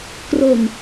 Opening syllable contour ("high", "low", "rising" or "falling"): low